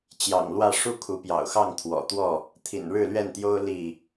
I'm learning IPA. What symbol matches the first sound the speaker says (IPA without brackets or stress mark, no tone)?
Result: t͡ɕ